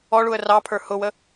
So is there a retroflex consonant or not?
yes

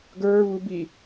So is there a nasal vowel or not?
no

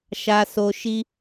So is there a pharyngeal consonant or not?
no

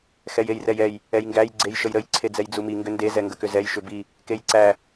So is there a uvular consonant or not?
no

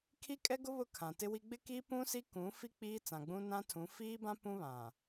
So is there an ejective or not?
yes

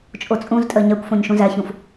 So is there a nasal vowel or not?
yes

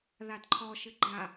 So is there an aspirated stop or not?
yes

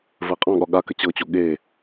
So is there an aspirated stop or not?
no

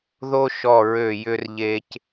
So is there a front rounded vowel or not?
yes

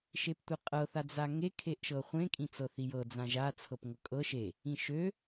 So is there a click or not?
no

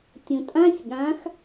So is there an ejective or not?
yes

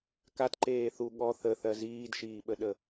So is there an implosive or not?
yes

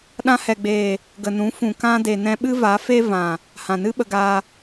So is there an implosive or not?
yes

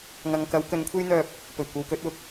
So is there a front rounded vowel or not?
yes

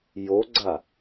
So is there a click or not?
yes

